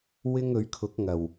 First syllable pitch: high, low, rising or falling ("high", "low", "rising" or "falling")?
high